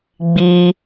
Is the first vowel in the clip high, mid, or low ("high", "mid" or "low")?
high